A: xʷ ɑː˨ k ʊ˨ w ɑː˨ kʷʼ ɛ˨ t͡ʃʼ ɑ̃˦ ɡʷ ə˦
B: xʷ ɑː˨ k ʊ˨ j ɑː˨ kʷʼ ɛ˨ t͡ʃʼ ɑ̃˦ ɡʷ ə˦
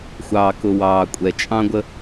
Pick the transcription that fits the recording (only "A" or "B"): A